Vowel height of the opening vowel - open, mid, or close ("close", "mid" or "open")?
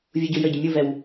close